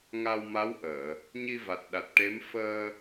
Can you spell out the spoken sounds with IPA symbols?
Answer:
ŋ a˧ w m a˧˥ w ʔ əː˨˩˨ | ɲ i˧ v a˨˩ t̚ ɗ a˨˩ t̚ ʈ e˧˥ m f əː˧

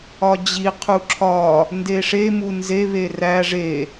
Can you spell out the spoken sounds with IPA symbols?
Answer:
ɒ d͡ʑ i qʰ u ǁʰ ɒ | n d e ʂ e m u n z e β e r æ ʐ e

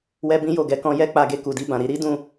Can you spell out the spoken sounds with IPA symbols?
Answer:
w ɛ˦ b ĩ˦ j o˦˨ ɡ ɛ˧ k ɔ̃˧ j ɛ˦ k͡p a˧ ɡ e˧ k u˨ d i˧ b ã˨ ɾ i˧ ɾ i˦ d ũ˦˨

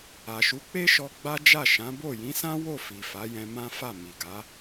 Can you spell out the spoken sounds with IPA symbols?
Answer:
a˨ ʃ u˨˦ k͡p e˦ ʃ ɔ˧ ɡ͡b a˦ d͡ʒ a˦˨ ʃ ã˨˦ b o˦˨ j ĩ˨˦ s ã˦ w o˦˨ f i˨ f a˨˦ j ɛ̃˧ m ã˦ f a˦˨ m i˨ ɡ a˨˦

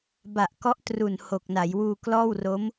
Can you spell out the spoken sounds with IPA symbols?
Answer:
b a˨˩ ʔ k ɔ˦˥ ʔ t r u˨˩ n h o˨˩ k̚ n a˩˦ j w uː˧ k l ɔː˥˩ w r o˦˥ m

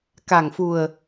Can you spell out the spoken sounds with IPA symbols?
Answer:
k a˧˩ ŋ f u˧˩ ə̯

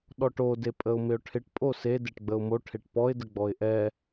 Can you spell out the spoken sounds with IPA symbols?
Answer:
ɗ ɔ ʈ o d e pʼ ə ʊ̯ m ɪ ʊ̯ ʈʰ ɪ ʈ pʼ o s e d e ʈ ɡ͡b ə ʊ̯ m o ʈʰ e ʈ p ɔ ɪ̯ d ə ɡ͡b ɔ ɪ̯ ʔ ɛ

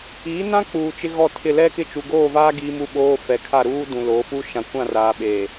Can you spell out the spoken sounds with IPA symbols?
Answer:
iː˨˦ n ã˦ k͡p uː˨ t͡ʃ ɪ˦ ɣ ɔ˦˨ tʰ ɪ˦˨ l ɛ˦ k ɪ˦˨ t͡ʃ u˨ ɡ oː˦˨ v aː˦ ɡ i˦ m u˦ ɓ oː˦ f ɛ˨ kʰ a˦˨ ɾ uː˦ d ũ˨ l oː˨˦ f u˦ ʃ ã˨ kʷ ã˦˨ r aː˨ ɓ e˨

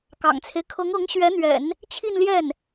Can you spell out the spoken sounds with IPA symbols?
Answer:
k ɑ̰˨˩ ŋ t͡sʰ e˦ ɪ̯ kʰ ɤ˧˥ ŋ ɤ˧˥ ŋ ɕ ɥ ɛ˧˥ n̪ ɥ ɛ̰˨˩˦ n | t͡ɕʰ i˥˧ n l j ɛ˥˩ n

